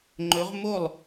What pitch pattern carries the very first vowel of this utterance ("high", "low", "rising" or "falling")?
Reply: rising